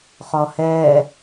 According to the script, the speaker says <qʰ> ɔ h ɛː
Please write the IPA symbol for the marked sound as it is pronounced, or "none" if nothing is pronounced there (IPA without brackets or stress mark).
χ